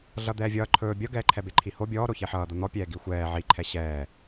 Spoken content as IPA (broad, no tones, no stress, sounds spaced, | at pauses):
ɮ ʌ d̪ ɛː vʲ ʌː ǃʰ ɵː bʲ ʌ ɡ ɛː ǃʰ ɛ b e ǃʰ i h o bʲ ɔː ɾ o ç e ħ ʌː d̪ ʌ n̪ ɔ pʲ ɛː ɡ i xʷ ɛː ʕ i ǃʰ ɛ ɕ ɛː